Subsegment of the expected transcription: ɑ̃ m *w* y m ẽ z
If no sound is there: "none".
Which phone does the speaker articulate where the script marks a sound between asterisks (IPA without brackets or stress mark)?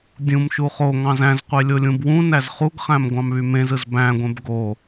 β